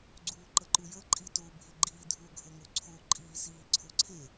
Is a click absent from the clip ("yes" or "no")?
no